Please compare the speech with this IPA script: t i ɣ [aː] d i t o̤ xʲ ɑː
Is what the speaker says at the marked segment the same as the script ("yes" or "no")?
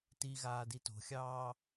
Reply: yes